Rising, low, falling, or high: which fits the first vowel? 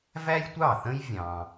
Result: high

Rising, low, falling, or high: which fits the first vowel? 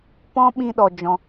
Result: high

